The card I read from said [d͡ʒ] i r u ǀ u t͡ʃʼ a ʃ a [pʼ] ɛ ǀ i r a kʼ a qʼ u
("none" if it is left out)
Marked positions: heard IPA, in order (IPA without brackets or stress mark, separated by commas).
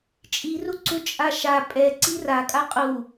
t͡ʃʼ, pʼ